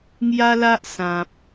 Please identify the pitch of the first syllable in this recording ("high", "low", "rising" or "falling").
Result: high